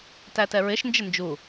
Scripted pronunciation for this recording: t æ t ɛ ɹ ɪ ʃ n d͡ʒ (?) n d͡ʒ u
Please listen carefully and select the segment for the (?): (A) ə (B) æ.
A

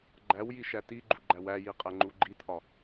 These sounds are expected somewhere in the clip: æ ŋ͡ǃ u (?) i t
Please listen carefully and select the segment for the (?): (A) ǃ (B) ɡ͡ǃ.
B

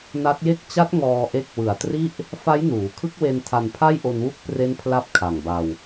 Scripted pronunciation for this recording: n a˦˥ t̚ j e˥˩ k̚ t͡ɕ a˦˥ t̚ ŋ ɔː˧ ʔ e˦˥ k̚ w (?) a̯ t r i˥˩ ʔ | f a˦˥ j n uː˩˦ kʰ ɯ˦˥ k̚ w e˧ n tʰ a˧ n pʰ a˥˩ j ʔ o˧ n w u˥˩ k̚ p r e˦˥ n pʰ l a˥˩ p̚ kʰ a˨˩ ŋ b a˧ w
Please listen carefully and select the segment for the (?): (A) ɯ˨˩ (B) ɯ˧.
A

